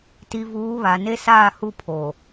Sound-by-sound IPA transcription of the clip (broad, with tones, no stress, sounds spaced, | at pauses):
t i˨ v uː˨˦ β a˨ n e˦ s aː˦˨ h u˦˨ pʰ oː˨